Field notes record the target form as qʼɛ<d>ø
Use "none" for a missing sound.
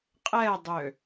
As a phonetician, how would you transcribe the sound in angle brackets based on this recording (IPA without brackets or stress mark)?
dˤ